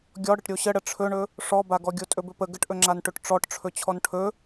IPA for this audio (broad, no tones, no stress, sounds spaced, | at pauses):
ɡʲ ɔ ɽ ə ʈ ɾʲ o ɕ ə ɽ ə ʈ͡ʂʰ ɵ ɳ ɵ | ʂ ɔ b a ɡ ɔ ɡʲ o tʼ ɵ b ɵ p ə ɡ ə ʈ ʔ ɵ ŋ͡ǁ a n ʈ ɵ ʈ ʈ͡ʂ ɔ ʈ ʈ͡ʂʰ ɵ t͡ɕʰ ɔ n ʈʰ ɵ